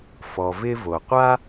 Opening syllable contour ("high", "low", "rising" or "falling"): low